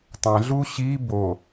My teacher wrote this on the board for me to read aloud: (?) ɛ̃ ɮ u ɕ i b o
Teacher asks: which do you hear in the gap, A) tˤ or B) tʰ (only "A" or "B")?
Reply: A